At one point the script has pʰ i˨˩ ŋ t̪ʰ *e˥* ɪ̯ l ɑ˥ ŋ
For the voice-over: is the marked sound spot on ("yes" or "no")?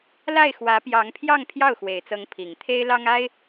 yes